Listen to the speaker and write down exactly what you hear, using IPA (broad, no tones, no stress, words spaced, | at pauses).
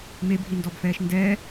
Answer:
mebʱindɔbfɛːʃ ndɛː